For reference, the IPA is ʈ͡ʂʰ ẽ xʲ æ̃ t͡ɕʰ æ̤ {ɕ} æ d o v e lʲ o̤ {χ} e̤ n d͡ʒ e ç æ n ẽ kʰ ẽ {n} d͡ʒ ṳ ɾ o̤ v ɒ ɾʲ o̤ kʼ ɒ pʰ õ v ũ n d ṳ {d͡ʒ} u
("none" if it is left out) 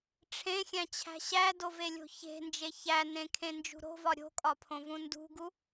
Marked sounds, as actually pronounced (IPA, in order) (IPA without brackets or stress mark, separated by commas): ɕ, ç, n, ɡ